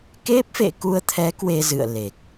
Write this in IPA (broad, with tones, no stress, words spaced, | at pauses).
ke˦˥p̚fḛ˧˨ku˧ə̯t̪ʰɛ˨˦ kwe˧zɨ̰˧˨ə̯le˨˩k̚